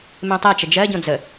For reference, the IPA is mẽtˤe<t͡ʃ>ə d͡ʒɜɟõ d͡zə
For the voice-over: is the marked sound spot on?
yes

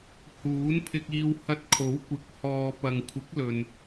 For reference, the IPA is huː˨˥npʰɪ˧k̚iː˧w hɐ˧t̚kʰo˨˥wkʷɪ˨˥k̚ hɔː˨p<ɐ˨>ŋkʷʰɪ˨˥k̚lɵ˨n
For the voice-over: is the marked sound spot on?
yes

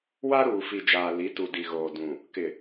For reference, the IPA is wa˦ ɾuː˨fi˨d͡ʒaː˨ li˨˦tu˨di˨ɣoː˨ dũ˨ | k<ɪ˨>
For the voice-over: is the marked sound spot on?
yes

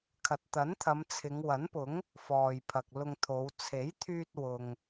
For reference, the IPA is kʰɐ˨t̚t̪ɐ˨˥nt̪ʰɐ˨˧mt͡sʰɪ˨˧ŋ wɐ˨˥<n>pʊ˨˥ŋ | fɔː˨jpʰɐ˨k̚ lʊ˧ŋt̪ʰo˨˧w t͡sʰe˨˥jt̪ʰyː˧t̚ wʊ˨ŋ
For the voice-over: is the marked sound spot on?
yes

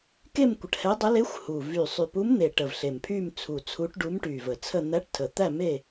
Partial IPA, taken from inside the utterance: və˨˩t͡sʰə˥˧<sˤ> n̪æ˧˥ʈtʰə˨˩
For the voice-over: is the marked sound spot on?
no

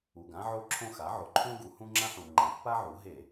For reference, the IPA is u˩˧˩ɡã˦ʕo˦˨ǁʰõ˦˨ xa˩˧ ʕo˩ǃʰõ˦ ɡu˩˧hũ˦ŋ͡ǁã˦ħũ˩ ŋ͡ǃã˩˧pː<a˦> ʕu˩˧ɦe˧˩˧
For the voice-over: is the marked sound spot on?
yes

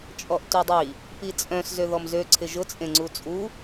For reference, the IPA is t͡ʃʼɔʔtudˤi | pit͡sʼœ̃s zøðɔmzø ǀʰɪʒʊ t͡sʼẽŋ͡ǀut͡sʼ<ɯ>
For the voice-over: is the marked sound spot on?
no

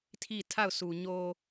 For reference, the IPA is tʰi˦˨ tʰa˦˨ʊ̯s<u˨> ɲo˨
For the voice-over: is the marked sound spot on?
yes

